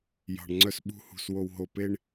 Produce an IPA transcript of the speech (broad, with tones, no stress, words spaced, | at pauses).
jɑ̤˨ɳŋ͡ǀœ˧sɓṳ˧hṳ˨s wo˨wɦo˨pe˧ɳ